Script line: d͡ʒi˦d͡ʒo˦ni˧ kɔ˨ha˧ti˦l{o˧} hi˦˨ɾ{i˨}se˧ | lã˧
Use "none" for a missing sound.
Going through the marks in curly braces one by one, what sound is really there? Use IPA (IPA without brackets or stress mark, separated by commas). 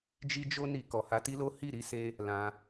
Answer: o˦, i˧